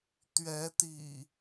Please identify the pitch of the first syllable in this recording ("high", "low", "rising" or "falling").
rising